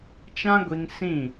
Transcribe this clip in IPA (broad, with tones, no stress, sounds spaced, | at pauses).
t͡ʃ ã˦ ɡʷ i˧ ŋ s ĩ˦˨